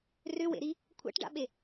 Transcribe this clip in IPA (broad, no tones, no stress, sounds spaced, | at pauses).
r ʏ w ḛ ɾ i | kʷʰ a̰ ʈ ɖ a̰ ɓ e